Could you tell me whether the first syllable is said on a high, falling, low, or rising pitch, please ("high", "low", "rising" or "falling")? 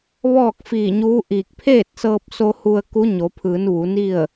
falling